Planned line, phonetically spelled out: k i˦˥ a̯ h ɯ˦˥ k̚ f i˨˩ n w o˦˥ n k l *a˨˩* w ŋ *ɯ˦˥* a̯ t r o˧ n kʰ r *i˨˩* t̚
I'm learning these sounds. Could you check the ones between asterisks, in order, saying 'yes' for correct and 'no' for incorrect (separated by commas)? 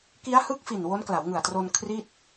no, no, no